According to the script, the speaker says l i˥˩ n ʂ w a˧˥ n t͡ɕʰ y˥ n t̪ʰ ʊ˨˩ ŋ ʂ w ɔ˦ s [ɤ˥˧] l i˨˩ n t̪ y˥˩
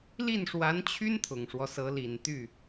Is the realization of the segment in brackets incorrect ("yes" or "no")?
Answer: yes